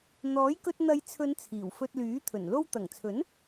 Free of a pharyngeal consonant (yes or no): yes